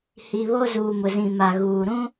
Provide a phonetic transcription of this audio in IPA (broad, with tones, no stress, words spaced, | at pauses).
hi˨ βo˦zuː˨mʊ˨zĩ˨ ma˨ɣuː˨ ɾũ˦